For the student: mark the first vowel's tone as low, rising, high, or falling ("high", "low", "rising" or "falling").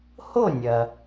falling